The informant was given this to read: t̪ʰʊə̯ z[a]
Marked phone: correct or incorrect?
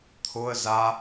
correct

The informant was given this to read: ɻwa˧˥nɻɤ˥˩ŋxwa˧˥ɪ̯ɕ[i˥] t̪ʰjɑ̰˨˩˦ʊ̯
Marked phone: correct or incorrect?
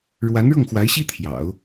correct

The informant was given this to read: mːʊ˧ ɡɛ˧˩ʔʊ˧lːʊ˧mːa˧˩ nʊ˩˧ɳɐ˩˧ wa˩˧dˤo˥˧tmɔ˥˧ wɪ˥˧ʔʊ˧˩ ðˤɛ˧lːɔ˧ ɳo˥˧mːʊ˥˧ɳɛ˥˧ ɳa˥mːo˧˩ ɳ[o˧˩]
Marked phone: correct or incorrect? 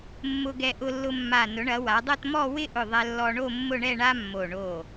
correct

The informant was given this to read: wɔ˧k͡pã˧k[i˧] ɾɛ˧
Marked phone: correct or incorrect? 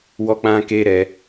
incorrect: e˧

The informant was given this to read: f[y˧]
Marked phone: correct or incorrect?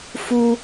incorrect: u˧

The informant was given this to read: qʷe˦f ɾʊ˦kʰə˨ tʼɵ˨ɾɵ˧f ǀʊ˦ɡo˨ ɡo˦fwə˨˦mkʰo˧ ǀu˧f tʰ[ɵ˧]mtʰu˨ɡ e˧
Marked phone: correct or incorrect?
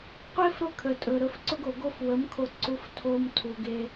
incorrect: o˧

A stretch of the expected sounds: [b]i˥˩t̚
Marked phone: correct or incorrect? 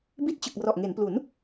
correct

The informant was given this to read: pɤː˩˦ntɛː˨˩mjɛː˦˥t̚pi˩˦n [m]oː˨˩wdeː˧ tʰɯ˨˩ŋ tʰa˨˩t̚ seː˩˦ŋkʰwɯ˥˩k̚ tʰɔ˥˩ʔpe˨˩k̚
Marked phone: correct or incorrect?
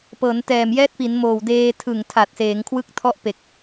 correct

